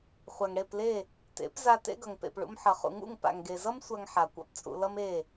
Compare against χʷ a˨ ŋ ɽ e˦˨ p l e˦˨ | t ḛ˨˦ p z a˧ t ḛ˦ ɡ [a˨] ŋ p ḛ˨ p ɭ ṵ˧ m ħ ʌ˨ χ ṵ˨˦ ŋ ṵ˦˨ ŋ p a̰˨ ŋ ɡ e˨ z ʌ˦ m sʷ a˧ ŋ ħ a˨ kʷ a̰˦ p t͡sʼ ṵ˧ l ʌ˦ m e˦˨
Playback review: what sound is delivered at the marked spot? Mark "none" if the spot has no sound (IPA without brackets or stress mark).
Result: ʌ˨